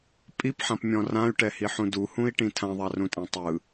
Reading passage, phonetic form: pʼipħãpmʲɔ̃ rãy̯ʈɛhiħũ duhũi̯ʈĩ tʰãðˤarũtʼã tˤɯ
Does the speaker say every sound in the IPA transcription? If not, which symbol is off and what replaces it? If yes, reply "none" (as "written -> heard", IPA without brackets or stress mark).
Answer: none